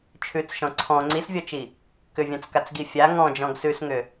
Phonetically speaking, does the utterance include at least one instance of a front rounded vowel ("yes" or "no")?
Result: yes